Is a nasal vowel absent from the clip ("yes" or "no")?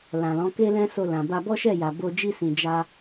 no